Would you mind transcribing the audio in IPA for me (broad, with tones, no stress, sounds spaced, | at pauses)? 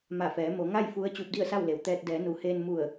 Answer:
m a˧˩ f ɛː˩˧ m o˩˧ ŋ a˥˨ j f u˧˥ ə̯ t͡ɕ uː˧ p̚ d i˥˨ ə̯ s a˥˨ w l e˩ w t̪ ɛː˧ t̚ d ɛː˩˧ n u˩˧ h eː˧ n m u˧˩ ə̯